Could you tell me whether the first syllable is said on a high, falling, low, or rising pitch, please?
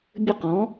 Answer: falling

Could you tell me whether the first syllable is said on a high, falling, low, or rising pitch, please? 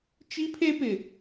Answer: high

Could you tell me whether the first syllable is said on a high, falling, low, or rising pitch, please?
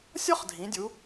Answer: high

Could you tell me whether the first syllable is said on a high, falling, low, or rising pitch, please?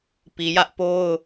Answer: low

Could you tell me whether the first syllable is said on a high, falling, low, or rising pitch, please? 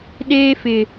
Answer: high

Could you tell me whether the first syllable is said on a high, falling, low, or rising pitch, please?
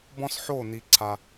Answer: high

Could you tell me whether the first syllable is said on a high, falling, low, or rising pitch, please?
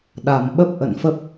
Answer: low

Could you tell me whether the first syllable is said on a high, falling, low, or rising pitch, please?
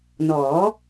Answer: rising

